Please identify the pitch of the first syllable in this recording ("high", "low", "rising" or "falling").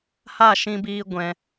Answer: falling